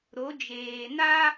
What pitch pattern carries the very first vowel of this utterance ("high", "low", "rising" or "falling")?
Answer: rising